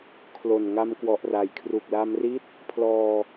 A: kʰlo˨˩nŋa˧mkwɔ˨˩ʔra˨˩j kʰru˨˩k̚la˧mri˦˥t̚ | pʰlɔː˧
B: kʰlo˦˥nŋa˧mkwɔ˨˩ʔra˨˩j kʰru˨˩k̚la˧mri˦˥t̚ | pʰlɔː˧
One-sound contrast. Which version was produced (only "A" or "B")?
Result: A